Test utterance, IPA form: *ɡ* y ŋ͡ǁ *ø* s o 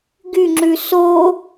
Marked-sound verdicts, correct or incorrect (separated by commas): correct, incorrect